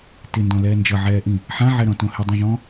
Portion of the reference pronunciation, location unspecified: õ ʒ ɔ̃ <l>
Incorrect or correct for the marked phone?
incorrect: none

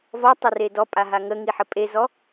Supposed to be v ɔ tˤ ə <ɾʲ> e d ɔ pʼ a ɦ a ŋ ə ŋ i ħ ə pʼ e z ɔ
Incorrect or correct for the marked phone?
incorrect: r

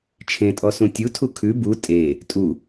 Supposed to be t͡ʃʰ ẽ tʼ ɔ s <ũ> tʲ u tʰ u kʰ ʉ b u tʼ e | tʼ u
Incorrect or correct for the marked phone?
correct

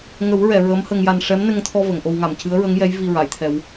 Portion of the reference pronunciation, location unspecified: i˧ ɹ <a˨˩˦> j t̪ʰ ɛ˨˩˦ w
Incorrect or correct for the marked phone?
incorrect: a˨˩˨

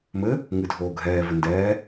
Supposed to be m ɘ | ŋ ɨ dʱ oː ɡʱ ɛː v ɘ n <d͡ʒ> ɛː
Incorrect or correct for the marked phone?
incorrect: d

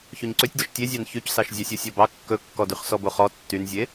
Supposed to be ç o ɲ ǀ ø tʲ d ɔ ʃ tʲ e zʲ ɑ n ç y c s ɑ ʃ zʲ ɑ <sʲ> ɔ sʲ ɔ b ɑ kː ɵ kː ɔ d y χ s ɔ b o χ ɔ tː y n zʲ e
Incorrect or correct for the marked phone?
correct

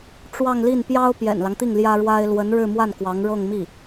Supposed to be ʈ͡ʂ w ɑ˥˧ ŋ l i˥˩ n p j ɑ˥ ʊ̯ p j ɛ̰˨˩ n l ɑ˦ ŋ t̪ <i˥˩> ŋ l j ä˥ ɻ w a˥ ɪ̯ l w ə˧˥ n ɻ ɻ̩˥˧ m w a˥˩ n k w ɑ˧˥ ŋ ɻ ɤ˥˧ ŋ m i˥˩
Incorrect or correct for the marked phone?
correct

